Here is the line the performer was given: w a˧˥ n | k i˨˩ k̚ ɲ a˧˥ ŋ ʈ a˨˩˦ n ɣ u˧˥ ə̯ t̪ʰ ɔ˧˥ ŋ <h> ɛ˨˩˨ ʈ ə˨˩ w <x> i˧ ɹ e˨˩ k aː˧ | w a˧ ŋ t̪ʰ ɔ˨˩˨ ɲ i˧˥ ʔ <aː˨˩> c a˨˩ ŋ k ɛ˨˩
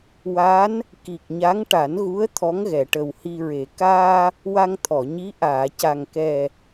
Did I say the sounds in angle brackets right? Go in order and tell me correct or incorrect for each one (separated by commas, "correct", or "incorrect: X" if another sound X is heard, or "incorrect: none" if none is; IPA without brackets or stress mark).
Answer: incorrect: ɣ, incorrect: h, incorrect: aː˨˩˨